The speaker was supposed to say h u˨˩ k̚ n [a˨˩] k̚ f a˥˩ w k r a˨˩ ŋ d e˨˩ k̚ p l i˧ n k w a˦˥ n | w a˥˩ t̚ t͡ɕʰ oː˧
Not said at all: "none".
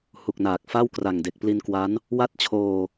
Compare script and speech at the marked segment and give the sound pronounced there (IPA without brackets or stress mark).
aː˨˩